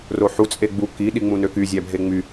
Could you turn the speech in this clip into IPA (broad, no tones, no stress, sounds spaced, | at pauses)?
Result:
r o ħ u t͡sʼ e ɡ͡b u k i ɗ i ŋ͡m ũ n ø k y zʲ æ bʱ e ŋ͡m y